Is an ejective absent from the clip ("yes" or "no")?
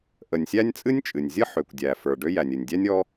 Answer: no